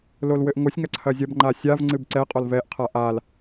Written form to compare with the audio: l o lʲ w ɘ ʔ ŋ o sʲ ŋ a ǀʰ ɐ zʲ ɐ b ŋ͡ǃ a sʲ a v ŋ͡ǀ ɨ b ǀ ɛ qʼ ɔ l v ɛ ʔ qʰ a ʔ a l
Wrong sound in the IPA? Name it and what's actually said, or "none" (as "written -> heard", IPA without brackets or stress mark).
lʲ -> l